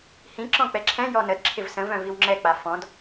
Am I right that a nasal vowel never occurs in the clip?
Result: no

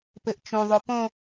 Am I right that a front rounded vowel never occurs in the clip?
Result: yes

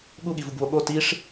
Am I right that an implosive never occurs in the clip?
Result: no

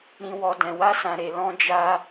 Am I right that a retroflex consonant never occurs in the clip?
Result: yes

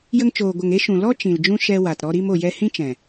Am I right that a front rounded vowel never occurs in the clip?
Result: yes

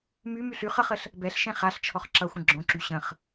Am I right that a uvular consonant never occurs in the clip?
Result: no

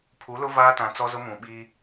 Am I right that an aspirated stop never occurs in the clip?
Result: no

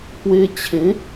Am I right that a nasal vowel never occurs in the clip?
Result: no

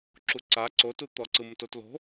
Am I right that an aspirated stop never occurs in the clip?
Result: yes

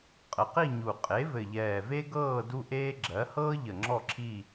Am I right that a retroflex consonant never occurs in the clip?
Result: yes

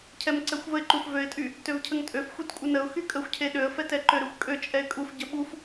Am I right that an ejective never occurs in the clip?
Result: no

